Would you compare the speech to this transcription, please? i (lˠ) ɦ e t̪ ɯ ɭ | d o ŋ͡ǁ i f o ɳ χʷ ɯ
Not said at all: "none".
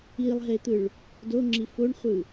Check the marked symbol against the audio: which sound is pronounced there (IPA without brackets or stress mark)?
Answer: lˠ